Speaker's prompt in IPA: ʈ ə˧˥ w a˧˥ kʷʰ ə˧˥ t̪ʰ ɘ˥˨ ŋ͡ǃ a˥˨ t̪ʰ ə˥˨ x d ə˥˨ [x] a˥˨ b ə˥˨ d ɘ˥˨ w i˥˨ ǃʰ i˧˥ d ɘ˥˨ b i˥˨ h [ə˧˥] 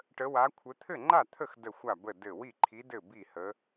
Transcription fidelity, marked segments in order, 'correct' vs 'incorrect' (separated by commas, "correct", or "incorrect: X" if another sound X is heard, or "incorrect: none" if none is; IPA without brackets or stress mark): incorrect: xʷ, correct